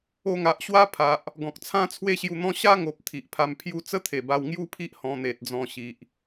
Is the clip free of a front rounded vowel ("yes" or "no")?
yes